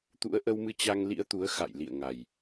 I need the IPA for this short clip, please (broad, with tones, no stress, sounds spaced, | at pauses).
t̪ ṵ˧˥ ə̯ ʔ ə˧ w m ɨ˧ t͡ɕ a˧ ŋ l ḭ˧˥ ə̯ t̪ u˨˦ ə̯ x a̰˧˨ j l ḭ˧˨ ə̯ ŋ a˨˩ j